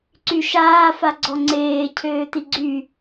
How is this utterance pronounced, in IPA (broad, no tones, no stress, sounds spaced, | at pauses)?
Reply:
ǀ y ʃ aː f a ɡ͡ǀ ɔ ŋ͡ǀ eː cʰ øː t i ɡ͡ǀ y